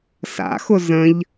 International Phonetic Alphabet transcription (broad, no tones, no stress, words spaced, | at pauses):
sa̰xʊ zə̃ʎ